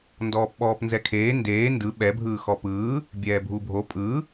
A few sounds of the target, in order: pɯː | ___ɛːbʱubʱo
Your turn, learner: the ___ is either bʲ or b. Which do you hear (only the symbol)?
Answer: bʲ